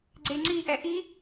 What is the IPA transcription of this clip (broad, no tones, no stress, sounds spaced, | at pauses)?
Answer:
ɡ͡ǀ e ŋ͡ǀ i ʔ ɛ ʔ i